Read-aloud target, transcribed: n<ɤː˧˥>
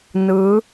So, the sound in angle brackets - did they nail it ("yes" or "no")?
no